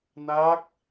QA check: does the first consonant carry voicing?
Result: yes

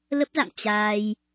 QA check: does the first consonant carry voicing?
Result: yes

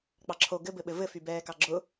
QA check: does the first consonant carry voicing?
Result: no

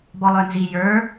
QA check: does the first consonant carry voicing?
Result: yes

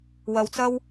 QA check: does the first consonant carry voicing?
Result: yes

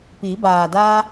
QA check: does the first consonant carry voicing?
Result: no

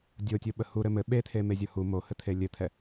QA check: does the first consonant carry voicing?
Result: yes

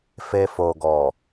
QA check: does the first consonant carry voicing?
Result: no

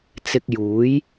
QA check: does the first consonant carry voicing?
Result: no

